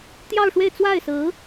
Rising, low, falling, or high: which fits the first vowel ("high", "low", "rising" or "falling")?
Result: falling